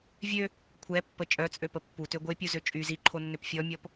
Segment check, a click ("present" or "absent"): present